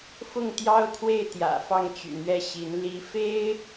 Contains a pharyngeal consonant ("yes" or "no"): no